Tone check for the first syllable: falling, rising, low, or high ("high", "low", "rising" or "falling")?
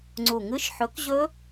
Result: low